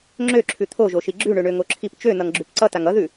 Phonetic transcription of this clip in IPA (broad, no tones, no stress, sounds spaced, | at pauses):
ŋ͡ǁ ø ǁʰ ʉ t̪ʰ o ʒ o ʃ i ɡ͡ǁ ʉ ɳ ø ɳ ø ŋ o ǁʰ i p t͡ʃ ø n ʌ ŋ ɡ͡ǁ ʉ p ǀ ʌ t a ŋ ʌ ð ʉ